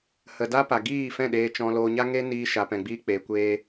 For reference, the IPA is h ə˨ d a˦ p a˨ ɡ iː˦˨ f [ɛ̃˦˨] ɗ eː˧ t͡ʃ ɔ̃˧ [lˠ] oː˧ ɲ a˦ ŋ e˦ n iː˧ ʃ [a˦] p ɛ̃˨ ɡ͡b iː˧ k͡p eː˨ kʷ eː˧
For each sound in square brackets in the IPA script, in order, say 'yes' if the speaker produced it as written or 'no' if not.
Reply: yes, no, no

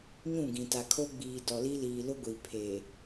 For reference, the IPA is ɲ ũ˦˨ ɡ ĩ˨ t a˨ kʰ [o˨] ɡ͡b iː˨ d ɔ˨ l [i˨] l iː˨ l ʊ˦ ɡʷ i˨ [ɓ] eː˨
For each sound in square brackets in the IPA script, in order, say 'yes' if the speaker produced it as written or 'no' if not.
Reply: no, no, no

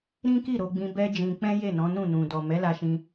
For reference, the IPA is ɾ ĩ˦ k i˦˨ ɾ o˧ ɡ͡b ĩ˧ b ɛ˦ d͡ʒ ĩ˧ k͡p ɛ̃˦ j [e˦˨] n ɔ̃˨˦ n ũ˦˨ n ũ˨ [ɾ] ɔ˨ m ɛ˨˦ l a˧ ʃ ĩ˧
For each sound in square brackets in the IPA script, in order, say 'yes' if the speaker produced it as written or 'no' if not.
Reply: yes, no

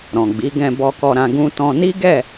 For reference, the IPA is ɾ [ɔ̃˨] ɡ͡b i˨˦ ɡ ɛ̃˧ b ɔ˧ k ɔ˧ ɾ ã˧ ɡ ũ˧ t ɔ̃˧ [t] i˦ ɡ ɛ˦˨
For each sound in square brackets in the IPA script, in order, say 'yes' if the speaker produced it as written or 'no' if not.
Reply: yes, no

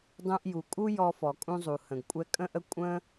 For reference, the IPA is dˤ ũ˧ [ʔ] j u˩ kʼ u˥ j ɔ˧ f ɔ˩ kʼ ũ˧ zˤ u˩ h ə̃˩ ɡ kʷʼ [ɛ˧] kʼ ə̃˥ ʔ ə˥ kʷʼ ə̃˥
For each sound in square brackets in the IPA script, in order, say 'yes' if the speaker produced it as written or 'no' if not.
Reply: yes, yes

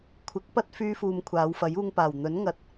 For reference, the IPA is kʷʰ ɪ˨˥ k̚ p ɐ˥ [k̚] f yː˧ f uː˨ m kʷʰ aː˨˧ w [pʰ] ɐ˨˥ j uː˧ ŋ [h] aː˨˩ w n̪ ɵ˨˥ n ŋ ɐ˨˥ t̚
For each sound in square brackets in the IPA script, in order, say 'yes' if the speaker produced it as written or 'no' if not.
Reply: no, no, no

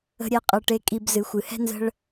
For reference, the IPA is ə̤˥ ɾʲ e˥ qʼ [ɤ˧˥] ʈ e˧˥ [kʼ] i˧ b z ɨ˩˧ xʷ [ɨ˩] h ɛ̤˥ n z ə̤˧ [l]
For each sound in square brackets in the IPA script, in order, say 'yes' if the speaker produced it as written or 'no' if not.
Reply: no, yes, yes, no

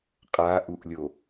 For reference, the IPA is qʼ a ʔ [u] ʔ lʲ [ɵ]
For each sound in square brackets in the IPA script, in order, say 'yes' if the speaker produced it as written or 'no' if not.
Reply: yes, no

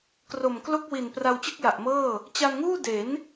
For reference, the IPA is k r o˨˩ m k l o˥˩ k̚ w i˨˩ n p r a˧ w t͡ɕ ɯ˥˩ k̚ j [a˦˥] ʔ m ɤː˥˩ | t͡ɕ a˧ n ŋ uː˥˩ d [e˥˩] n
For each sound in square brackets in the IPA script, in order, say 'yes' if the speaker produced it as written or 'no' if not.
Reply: no, no

